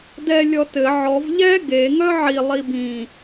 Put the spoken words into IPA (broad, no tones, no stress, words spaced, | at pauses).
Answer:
dɛ lʲɔtɘ ʕɔv ʎɛ ɡe ŋœʕi lˠibĩ